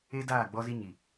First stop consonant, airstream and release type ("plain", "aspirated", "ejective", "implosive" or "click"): plain